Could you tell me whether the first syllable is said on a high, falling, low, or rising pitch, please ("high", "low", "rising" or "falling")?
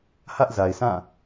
high